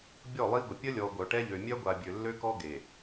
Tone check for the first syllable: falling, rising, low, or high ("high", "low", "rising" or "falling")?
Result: falling